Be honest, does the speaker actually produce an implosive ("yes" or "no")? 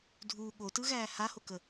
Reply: yes